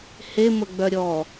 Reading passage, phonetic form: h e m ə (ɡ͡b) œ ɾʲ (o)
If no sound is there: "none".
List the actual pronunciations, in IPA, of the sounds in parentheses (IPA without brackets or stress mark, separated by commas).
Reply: ɡ͡b, ɔ